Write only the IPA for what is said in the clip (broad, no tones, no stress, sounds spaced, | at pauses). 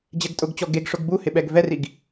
d͡ʑ ɛ ɡ tʼ ʊ ɡ t͡ɕ ɔ ɡ e ɡ ʂ ʊ ɡ b u h ɪ ɓ ɛ ɡ v ɛ r i ɡ